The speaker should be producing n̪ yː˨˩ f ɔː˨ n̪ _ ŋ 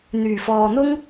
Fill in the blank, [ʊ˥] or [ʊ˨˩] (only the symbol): ʊ˥